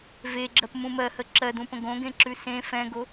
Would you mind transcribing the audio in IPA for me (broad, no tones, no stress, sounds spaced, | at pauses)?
v e ɡ͡ǁ ɜ p m ũ m ɜ h ə ǁ ɜ d ũ p ə̃ ɡ õ ɡ ẽ ǁ ʉ s ẽ f ɛ̃ ɡ o